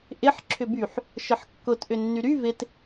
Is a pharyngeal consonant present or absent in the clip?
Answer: present